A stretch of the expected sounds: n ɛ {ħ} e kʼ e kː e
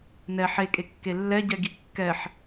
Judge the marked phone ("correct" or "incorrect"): correct